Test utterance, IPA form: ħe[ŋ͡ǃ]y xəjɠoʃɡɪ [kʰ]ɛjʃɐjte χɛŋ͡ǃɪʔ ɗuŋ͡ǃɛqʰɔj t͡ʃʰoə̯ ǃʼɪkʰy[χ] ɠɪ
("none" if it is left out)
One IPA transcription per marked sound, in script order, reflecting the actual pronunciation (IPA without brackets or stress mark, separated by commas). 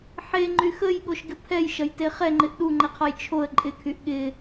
ŋ͡ǃ, pʰ, ʔ